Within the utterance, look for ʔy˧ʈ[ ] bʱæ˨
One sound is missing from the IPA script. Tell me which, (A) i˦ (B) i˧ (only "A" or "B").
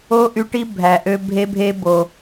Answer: A